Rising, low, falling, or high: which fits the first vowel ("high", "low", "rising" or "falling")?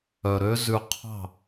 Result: low